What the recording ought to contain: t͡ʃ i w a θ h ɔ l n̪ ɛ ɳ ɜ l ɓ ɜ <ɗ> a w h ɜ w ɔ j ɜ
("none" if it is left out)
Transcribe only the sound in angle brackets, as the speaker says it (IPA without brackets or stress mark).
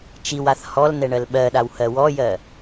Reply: ɗ